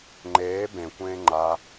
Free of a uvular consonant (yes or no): yes